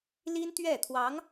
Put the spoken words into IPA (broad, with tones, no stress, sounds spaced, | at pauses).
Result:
l i˥ n t̪ ɥ ɛ˥˩ t̪ʰ w ɑ˧˥ ŋ